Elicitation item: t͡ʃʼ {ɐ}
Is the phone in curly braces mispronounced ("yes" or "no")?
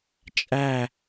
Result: yes